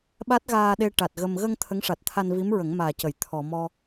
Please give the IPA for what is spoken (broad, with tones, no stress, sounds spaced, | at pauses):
ɓ a˦˥ t̚ ɣ aː˧ ɗ e˧ ʈ a˨˩ t̚ ɣ ə˧ m ɣ ə˧ ŋ t̪ʰ ə˧˥ ŋ ʂ a˨˩ t̚ t̪ʰ a˧ n v i˧˥ m ɹ ə˨˩˦ ŋ m aː˨˩ c ə˨˩˨ j t̪ʰ ɔ˨˩˨ m ɔ˧